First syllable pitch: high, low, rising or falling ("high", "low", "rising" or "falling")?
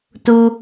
high